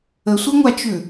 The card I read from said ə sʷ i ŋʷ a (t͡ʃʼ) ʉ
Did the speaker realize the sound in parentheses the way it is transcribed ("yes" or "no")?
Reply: no